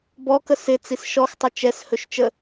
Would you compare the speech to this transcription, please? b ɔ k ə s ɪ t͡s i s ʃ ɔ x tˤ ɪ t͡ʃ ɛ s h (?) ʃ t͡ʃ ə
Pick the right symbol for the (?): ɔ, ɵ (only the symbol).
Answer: ɵ